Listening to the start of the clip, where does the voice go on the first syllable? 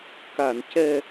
low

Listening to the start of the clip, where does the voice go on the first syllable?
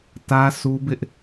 high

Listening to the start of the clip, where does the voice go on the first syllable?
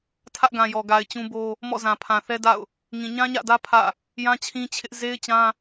high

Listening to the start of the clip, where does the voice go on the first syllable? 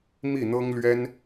falling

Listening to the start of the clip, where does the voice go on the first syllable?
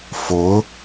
rising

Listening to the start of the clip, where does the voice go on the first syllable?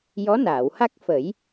rising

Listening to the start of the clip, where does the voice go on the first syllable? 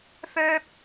high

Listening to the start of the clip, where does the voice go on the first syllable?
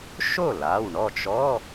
falling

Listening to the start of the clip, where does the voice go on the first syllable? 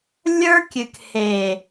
high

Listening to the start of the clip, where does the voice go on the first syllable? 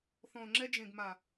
low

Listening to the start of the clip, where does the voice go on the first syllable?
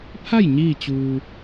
falling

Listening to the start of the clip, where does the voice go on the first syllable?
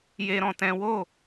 high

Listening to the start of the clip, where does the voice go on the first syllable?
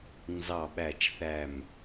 low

